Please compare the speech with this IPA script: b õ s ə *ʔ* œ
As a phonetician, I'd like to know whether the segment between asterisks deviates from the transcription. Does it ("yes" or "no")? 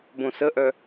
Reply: no